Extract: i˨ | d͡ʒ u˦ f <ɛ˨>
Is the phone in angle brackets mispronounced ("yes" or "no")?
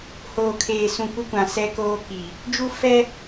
yes